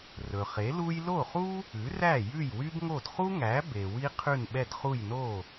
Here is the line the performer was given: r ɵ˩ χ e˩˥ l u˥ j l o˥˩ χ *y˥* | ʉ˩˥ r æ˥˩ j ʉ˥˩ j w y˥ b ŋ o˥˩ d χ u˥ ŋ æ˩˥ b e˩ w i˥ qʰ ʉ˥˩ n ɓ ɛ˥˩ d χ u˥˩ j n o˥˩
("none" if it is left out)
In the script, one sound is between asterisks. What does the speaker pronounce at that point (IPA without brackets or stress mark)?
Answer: u˥